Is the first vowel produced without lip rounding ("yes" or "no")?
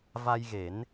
yes